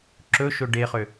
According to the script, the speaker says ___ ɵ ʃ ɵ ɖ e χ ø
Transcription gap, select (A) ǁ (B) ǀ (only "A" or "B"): A